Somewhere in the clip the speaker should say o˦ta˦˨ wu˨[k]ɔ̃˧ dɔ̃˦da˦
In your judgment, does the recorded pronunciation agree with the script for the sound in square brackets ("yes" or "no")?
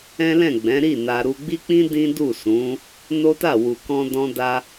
yes